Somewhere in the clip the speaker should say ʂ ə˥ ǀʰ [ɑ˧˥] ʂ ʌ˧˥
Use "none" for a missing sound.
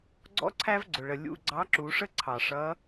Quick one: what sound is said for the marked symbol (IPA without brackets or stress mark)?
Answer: ɑ˩